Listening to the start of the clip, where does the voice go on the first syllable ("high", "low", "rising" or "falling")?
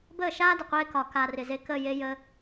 falling